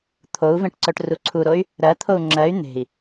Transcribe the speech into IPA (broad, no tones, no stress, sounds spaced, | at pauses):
t̪ʰ o u̯ v ẽ ʈ ǀ œ ʈ r u ǀʰ u ɾ o y̯ | ɾ ɜ t̪ʰ o u̯ ŋ͡ǁ ɜ y̯ n̪ e̤ i̯